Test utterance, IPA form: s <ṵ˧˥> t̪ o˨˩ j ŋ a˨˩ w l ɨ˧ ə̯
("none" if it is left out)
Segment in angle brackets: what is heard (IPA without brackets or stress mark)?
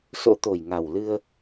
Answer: o̰˧˥